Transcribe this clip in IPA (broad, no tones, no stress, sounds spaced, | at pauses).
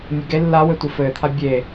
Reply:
mʲ ɘ ɡ e lː a w ɘ tʷ ɘ f ɘː t̪ʰ a bʲ e